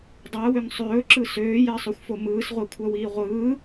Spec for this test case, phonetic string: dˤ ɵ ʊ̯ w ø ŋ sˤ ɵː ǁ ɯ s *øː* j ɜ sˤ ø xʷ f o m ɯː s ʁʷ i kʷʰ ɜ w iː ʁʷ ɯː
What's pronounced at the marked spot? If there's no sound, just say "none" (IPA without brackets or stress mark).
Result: øː